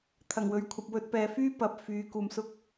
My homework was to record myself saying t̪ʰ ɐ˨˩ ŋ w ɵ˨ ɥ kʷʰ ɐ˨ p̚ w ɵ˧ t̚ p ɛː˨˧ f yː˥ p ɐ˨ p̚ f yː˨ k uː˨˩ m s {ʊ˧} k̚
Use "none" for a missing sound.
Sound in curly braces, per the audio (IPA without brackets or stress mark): ʊ˧